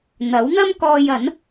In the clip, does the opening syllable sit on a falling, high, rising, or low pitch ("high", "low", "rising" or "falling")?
rising